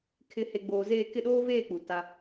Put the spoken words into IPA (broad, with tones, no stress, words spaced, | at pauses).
kʰɪ˨he˨ ɡ͡boː˨zeː˦˨ kɪ˦˨ɗoː˦veː˦˨k͡pu˨ ta˦